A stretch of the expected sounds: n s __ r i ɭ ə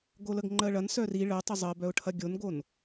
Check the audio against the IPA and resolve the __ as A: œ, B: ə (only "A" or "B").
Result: A